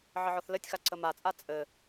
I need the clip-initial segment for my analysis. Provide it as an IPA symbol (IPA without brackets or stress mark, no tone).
ʕ